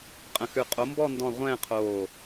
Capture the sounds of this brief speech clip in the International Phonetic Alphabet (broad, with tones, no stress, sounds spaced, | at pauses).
qʼ ə̃˧˩ x ʉ˧˩ qʼ o˨˥ m b ɔ˥˧ n d ɔ̃˥˧ ʁʷ ɛ̃ː˥˧ qʰ oː˧˩